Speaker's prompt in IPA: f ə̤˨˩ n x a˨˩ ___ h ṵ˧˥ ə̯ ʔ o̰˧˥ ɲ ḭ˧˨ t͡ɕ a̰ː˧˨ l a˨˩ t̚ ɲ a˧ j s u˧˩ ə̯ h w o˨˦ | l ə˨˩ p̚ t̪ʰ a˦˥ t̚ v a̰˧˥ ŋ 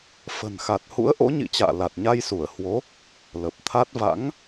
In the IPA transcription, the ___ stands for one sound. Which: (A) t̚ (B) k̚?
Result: A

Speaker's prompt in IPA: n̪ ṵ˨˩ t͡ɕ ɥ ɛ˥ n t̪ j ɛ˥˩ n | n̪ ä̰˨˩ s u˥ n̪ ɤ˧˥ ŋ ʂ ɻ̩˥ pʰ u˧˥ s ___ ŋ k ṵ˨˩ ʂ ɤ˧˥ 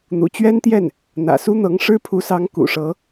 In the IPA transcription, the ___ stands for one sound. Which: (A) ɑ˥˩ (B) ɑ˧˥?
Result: B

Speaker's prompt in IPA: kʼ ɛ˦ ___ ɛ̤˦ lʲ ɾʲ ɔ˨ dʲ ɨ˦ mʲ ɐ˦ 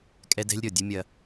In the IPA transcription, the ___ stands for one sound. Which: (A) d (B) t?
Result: A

